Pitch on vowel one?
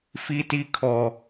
high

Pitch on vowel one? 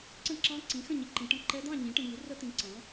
falling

